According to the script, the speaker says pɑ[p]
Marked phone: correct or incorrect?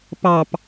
correct